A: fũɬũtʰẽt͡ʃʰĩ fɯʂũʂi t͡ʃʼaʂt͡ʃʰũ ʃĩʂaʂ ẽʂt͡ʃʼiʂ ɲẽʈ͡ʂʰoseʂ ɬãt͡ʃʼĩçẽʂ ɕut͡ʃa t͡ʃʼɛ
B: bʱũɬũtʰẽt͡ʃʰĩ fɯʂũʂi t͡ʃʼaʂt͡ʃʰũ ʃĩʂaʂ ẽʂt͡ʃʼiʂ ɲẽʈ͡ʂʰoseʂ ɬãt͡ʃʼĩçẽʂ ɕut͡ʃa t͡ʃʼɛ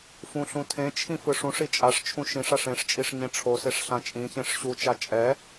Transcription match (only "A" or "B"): A